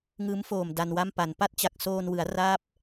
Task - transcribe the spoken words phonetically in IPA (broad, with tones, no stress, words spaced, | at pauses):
ŋɯː˦˥mfoː˨˩m da˧nwa˥˩mpa˩˦n pa˥˩t̚t͡ɕa˨˩k̚soː˧n wɯ˩˦a̯raː˦˥p̚